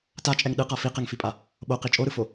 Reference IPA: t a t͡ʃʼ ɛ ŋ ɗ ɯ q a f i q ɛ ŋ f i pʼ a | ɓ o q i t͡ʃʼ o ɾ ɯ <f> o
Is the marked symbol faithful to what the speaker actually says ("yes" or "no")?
yes